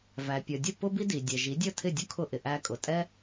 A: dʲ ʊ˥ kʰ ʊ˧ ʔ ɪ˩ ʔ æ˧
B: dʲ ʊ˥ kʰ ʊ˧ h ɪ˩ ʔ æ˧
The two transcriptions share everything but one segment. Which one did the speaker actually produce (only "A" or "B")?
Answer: A